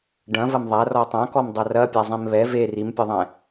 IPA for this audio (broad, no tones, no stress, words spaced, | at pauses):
ɖɐ̃vɐm ðˤarɔ tˤãkɔmdˤɐ rɐpʲazˤẽm βɛ ve rimpʲɛðˤɛ̃